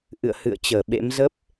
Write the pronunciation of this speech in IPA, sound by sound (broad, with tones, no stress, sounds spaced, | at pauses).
ʔ ɨ̰˧˨ ə̯ h ɨ̰˧˨ ə̯ t͡ɕ əː˧˩ ɓ ḛ˧˥ m z ə˦˥ p̚